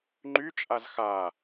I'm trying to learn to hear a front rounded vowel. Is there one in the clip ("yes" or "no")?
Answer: yes